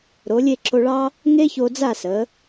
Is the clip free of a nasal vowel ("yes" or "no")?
yes